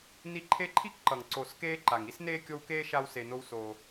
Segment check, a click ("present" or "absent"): present